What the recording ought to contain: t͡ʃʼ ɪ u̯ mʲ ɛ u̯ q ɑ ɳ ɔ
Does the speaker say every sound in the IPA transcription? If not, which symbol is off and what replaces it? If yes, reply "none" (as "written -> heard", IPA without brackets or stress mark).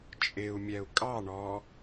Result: q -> kʼ